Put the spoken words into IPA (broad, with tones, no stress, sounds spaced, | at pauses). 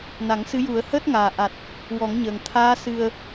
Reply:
n a˨˩˦ ŋ s ɨ˧˥ j u˨˩˦ ə̯ h əː˦˥ t̚ ŋ aː˨˩ ʔ a˨˩ t̚ | w ɔ˨˩˦ ŋ ɲ əː˨˩ ŋ t̪ʰ aː˧˥ s ɨ˨˩ ə̯